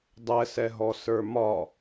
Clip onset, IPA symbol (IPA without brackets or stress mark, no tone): dˤ